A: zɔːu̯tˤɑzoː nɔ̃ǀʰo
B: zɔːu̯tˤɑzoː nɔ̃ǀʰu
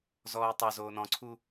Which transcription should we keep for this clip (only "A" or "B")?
B